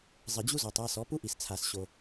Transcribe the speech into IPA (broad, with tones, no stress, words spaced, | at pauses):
zˤɘ˨d͡ʑu˦zɔ˨tˤ a˧ sɔ˨˦pu˦ʔi˨st͡sʰa˨s ɕo˧